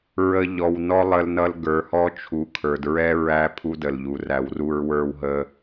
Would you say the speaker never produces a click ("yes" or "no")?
yes